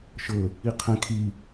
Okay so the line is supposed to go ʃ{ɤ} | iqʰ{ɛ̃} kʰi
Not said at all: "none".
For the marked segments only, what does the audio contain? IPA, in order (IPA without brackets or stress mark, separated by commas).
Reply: ɤ, ɛ̃